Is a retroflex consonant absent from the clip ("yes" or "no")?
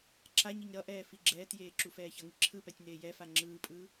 yes